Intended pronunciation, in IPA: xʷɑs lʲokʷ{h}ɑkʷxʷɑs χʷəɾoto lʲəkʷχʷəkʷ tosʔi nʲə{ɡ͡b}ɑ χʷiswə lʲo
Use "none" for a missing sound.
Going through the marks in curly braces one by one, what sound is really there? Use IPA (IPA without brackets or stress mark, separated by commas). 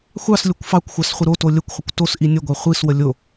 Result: f, ɡʷ